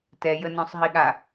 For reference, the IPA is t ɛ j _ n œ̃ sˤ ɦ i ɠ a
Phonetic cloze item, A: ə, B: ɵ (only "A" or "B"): A